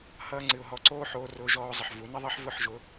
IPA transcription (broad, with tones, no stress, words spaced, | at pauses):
hʌː˧ŋ͡ǀɨ˨ʊ̯ɦɔ˧ǀoː˦ ħoː˧rʊː˧ʒɔː˧ʊ̯zˤə˨ħ vu˨˦nə˦ðˤʌ˦ħ vʊ˦˨ħʒʊ˧